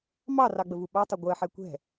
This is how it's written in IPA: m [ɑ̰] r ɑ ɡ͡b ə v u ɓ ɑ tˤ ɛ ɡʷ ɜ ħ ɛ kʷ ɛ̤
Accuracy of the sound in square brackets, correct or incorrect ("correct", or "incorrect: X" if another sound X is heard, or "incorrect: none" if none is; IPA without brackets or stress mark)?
incorrect: ɑ